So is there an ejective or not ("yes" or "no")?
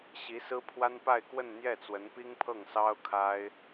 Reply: no